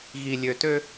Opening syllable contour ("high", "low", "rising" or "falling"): low